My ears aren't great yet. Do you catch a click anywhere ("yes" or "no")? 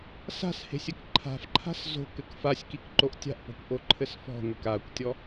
yes